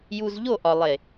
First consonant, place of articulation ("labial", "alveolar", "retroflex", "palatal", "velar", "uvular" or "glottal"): palatal